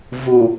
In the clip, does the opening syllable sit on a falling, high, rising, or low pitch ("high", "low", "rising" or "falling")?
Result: low